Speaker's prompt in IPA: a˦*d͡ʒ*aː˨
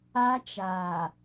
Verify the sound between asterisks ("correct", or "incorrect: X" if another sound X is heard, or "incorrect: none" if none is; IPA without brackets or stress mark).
incorrect: t͡ʃ